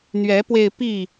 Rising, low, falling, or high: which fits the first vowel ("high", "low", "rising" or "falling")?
rising